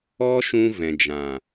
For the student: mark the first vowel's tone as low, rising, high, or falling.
high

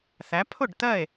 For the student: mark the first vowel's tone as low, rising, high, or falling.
rising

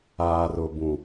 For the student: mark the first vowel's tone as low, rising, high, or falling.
low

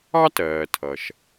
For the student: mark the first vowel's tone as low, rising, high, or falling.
high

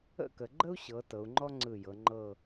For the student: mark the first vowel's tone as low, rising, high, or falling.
falling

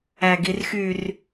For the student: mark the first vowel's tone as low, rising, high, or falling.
low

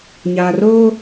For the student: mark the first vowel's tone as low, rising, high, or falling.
low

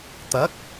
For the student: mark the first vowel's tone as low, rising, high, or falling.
rising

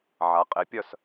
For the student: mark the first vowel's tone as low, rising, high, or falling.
rising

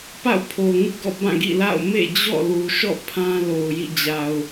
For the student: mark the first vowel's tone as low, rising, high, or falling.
falling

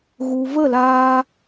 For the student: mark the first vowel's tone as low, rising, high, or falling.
low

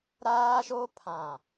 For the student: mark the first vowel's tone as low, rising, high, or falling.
high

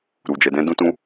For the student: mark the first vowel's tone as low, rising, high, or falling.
low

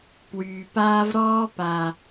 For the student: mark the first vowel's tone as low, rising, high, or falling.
low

